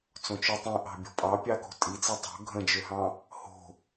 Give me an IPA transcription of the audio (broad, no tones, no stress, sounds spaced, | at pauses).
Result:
t͡s õ t͡ʃ ø tˤ ĩ ʔ ɑ̤ bʲ o̤ pʼ ɑ pʲ ɑ k o̤ tʼ i t͡s i tˤ o̤ ɡʱ ə̃ d͡ʒ ø ɦ ɑ̃ | h o̤